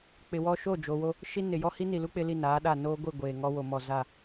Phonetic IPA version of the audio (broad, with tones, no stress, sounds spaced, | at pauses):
k͡p ɪ˨ w ɔ˦ ʃ o˦˨ d͡ʒ o˨ w o˦ | ʃ i˦ n ɪ˨ j ɔ˦ h i˦ n i˨ l u˦ k͡p ɪ˦ l i˦˨ n aː˨˦ ɗ a˦˨ n oː˦ ɡʷ i˦˨ ɡʷ eː˨ ŋ ɔ˦ w o˨ m ɔ˨ z a˦˨